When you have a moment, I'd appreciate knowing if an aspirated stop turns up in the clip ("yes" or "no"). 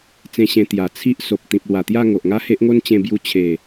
yes